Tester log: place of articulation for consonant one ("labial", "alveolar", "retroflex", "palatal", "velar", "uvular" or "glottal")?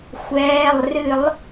velar